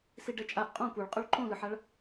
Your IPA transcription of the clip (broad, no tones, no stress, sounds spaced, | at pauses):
s i ɖ ɛ t͡ʃʼ a ʔ qʼ õ kʷ ɯ ɭ qʼ u ɭ ǃ õ l ɯ ħ a ɭ